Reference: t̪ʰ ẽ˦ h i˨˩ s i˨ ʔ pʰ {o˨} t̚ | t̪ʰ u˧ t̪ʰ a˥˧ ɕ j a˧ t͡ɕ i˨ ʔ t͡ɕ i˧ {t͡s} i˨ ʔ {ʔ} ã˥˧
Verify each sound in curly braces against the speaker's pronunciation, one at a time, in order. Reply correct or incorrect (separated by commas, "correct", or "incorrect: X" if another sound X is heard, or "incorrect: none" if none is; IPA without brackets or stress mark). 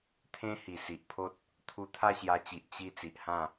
incorrect: o˦, correct, incorrect: h